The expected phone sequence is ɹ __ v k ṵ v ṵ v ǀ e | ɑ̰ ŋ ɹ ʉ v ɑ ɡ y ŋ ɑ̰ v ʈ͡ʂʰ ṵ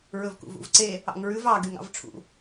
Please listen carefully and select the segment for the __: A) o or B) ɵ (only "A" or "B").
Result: B